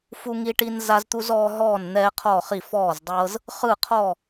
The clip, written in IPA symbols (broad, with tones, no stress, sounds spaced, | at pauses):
f u˦ ŋ i˦ ʈ i˦ n z a˦ z t̪ u˦ z ɔː˦ ɦ ɔː˥˨ n n̪ ɛː˦ qʰ ɔ˥˨ χ i˥˨ f ɔː˥˨ z dˤ ɤ˦ z | χ ɯ˥˨ qʰ ɔ˥˨